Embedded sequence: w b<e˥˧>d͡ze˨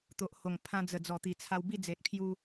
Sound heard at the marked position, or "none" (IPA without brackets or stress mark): i˥˧